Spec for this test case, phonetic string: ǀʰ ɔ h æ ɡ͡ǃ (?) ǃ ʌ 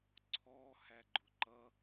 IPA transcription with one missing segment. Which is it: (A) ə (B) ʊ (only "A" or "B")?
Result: B